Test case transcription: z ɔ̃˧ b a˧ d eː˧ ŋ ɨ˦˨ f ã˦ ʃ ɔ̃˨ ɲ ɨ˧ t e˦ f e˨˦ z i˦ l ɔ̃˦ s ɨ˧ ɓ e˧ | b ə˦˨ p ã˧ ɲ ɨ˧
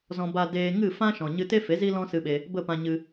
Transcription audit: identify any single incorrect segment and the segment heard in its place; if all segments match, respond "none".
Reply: none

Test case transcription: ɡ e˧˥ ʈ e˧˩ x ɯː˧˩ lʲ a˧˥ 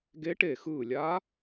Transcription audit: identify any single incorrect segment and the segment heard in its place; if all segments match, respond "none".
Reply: none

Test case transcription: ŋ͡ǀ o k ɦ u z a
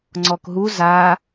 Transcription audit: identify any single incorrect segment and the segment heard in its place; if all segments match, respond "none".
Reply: o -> ɔ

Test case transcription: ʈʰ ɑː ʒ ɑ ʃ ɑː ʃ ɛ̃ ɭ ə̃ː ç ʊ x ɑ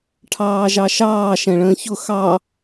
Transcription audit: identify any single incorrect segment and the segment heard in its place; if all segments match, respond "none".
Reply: none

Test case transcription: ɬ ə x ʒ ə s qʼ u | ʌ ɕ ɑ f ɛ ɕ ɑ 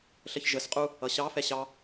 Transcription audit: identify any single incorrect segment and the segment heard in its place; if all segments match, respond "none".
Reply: x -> ç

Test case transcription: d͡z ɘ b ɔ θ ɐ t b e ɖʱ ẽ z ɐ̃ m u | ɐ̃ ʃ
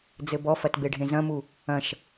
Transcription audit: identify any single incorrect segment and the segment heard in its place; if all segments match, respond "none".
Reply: θ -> f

